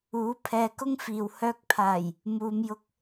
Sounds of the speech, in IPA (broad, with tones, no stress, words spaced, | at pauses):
uː˨˥pʰɛː˧ kʊ˥ŋfiː˨w hœː˧k̚pʰaː˨˩j | muː˨˧mjʊ˧k̚